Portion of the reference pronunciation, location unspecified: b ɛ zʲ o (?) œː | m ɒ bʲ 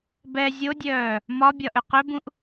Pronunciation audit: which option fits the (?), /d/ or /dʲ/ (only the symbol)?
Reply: dʲ